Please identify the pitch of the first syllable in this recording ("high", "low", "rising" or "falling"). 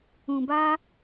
low